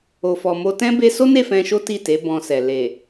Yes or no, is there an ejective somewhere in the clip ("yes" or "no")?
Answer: no